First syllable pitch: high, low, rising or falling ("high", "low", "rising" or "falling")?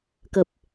low